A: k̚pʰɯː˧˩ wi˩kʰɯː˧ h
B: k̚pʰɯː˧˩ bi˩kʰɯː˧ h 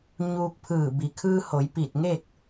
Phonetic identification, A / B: B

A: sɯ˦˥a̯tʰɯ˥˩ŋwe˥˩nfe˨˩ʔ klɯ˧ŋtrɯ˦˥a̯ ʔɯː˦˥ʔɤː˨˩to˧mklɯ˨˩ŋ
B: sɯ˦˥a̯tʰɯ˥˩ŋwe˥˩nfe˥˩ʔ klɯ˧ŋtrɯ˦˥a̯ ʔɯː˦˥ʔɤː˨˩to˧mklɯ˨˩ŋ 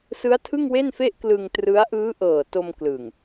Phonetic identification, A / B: B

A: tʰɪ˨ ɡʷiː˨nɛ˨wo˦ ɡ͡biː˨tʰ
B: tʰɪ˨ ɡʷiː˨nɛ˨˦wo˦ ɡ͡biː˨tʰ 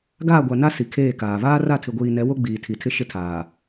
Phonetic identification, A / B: B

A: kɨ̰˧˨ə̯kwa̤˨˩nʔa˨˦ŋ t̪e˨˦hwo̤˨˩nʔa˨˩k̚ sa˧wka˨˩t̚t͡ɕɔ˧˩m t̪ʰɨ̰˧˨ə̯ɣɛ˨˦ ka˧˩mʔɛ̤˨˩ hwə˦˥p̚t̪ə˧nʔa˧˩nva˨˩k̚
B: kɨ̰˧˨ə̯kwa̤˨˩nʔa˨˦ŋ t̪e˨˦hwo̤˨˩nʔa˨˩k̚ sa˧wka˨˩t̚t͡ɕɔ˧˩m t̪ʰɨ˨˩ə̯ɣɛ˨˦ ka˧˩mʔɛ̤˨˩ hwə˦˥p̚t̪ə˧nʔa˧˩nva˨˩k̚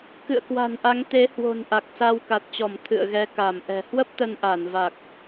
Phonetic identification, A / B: A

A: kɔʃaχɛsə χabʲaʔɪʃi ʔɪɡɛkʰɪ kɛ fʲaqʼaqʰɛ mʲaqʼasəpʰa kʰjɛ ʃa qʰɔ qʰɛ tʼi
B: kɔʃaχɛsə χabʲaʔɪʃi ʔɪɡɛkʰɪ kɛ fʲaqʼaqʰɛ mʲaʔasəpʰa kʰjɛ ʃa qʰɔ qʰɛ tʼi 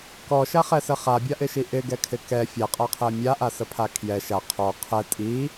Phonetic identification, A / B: B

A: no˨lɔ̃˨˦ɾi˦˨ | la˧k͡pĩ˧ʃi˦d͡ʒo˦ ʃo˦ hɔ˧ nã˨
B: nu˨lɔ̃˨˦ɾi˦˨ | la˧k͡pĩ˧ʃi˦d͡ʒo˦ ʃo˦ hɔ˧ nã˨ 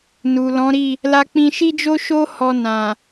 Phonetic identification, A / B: B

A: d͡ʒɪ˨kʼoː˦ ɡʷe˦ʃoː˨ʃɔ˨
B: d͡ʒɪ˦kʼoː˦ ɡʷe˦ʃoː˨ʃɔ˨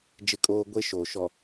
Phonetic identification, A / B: B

